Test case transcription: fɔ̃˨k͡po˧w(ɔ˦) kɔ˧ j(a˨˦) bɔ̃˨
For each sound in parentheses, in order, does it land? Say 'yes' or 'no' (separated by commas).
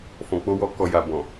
no, no